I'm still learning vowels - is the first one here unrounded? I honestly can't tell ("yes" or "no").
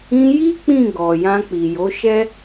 yes